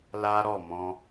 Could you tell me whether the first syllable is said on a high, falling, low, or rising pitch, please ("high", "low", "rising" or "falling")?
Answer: high